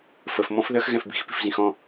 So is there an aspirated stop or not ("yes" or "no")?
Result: no